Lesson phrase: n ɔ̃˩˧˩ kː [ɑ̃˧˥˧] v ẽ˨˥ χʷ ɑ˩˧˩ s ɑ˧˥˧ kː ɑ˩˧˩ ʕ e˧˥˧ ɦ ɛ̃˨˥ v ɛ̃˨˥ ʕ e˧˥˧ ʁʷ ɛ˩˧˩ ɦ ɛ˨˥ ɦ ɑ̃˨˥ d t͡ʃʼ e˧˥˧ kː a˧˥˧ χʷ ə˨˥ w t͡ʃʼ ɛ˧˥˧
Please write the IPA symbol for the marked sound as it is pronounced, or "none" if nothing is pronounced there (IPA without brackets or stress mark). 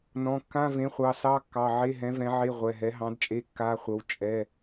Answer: ã˧˥˧